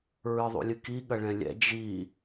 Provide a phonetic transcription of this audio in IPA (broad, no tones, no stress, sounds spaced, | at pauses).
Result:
ɹ ɨ ðˤ ṵ lʲ ɨ k i ɠ ɐ ɭ ɛ̃ lʲ ɛ̰ d͡ʒ i